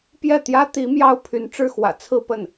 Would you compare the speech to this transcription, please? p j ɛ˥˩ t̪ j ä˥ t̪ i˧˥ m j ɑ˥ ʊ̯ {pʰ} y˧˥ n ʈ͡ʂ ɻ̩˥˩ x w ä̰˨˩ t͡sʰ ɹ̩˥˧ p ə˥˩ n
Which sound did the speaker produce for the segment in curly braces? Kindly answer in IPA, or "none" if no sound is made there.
pʰ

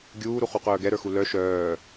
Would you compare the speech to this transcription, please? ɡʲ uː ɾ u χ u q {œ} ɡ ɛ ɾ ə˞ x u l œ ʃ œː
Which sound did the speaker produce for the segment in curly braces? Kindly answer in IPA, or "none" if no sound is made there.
œː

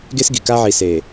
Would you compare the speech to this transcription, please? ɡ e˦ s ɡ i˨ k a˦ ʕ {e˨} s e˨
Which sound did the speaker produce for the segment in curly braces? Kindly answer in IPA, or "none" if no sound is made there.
i˨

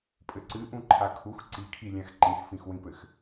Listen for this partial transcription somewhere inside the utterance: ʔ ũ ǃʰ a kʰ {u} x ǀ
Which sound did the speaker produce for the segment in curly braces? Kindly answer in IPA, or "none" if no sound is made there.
u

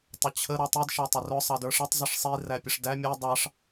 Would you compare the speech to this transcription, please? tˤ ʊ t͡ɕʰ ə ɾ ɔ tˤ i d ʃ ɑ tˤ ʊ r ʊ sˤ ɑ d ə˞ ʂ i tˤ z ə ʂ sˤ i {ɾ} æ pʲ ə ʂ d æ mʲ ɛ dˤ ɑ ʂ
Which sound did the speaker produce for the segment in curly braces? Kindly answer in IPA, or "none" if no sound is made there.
r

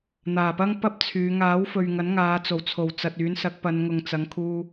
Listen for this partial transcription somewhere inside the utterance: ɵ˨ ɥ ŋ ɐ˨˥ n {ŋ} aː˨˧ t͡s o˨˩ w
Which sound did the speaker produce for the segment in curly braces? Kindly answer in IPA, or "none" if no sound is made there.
ŋ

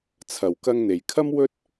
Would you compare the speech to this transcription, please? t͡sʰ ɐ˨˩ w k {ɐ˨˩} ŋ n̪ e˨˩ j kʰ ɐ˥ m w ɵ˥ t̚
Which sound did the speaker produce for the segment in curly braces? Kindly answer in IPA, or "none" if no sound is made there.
ɐ˧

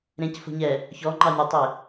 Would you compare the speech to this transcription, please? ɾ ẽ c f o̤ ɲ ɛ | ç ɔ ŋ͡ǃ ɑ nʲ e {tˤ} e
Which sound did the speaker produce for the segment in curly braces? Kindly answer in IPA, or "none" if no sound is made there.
tˤ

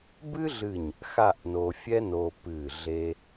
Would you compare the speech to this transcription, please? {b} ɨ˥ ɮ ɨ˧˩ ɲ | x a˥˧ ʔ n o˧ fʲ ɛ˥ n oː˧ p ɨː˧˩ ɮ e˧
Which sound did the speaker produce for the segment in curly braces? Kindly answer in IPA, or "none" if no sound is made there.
b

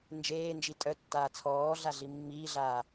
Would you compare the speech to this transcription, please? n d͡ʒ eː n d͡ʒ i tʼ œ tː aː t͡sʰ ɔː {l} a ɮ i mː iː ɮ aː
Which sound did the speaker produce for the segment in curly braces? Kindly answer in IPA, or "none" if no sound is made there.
ɮ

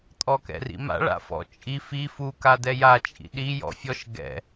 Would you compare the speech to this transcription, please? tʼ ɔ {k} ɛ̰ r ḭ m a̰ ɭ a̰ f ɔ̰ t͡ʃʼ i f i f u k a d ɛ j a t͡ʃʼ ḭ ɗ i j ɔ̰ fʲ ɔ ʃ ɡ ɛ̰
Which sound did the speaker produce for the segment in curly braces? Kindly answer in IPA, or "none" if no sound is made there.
k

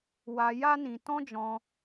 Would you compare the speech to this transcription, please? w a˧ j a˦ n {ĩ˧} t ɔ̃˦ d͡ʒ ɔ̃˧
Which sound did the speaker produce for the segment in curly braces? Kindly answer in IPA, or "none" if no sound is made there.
ĩ˧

